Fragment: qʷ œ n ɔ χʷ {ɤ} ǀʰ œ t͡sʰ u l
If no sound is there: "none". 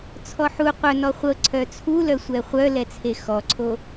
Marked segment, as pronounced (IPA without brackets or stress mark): ɤ